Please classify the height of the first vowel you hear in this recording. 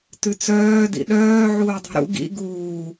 high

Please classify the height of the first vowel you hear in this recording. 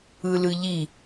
high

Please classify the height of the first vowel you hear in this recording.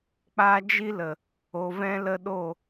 low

